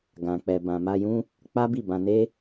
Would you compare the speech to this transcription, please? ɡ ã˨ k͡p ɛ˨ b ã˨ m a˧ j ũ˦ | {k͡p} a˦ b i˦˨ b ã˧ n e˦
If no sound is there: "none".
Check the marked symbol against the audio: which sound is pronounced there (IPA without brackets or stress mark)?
k͡p